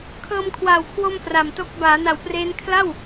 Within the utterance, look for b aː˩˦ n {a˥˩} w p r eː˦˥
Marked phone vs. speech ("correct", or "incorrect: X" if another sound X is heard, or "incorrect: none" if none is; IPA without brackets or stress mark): incorrect: a˩˦